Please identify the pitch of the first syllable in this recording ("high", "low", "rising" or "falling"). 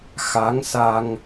rising